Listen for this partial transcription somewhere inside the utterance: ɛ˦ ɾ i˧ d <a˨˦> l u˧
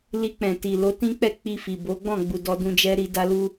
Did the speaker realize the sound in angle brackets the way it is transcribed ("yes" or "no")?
no